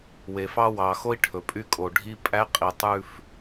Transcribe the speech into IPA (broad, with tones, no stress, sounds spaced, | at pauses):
w e˨ f ɑ˦ w ɑ˨ x o˦ i̯ ʈʰ ɵ˨ pʼ y˦ kʼ o˨ ɖʱ i˦ pʼ æ˦ qʼ i˨ tˤ ʉ˦ f